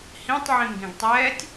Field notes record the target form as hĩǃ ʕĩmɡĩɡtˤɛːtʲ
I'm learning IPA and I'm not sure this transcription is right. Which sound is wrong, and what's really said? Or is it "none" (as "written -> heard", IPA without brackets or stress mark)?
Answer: ǃ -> tˤ